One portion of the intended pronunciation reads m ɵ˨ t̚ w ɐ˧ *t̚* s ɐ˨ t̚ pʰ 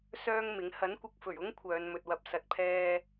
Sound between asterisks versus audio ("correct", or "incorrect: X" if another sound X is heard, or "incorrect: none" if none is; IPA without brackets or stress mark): incorrect: p̚